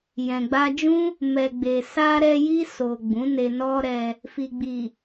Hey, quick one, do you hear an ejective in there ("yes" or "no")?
no